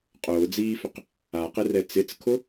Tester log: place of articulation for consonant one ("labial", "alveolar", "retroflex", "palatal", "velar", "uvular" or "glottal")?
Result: uvular